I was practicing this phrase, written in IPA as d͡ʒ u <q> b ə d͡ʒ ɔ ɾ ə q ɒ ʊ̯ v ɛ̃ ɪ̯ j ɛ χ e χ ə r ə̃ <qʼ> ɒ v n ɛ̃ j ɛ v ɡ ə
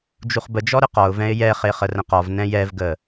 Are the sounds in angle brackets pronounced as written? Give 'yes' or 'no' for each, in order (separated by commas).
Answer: no, no